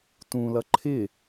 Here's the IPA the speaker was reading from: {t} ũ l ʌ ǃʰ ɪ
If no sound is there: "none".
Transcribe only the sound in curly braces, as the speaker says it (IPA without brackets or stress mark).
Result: t